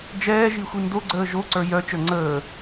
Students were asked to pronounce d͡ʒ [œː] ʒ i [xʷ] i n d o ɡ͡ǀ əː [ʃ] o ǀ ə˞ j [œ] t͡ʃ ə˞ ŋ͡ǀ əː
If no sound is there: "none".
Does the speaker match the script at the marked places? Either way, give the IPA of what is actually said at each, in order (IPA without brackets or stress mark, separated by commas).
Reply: ɛː, xʷ, ʒ, œ